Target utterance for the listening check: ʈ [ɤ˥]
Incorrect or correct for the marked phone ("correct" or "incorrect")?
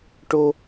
incorrect